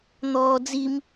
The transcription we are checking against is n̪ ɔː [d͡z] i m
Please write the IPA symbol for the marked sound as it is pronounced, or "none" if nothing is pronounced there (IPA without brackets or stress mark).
d͡z